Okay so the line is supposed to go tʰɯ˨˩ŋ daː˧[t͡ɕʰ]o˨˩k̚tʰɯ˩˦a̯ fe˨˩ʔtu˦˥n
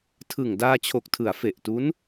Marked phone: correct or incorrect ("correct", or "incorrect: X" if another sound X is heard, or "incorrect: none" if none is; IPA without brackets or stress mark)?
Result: correct